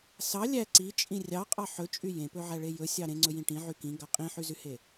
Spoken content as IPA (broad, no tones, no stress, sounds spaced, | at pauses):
s ɑ lʲ æ ǀ i t͡ʃʼ ĩ rʲ ɑ qʼ ɑ ħ ɵ t͡ʃʼ y j ẽ p ɵ ʕ æ ɭ e j ɵ sʲ ɑ ɾ ẽ ŋ͡ǀ ɵ j ĩ ʈ ĩ ʕ y k ĩ ɡ ɑ qʼ ĩ ħ y z y h e